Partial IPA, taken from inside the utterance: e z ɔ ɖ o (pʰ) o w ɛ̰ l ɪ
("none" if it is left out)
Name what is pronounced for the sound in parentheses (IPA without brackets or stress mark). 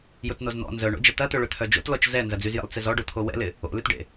t̪ʰ